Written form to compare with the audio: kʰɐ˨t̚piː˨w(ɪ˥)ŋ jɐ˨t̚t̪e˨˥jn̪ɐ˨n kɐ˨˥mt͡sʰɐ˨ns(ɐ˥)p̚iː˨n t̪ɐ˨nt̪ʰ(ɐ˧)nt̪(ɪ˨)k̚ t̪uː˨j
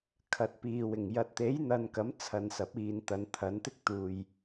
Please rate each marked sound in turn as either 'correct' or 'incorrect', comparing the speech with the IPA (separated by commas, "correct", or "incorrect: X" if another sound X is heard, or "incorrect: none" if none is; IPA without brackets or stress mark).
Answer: incorrect: ɪ˨˩, incorrect: ɐ˨˥, incorrect: ɐ˨˥, incorrect: ɪ˥